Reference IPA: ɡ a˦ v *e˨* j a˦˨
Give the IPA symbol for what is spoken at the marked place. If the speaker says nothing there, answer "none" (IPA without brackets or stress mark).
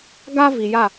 i˨